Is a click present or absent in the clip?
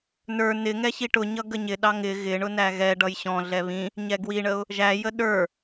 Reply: absent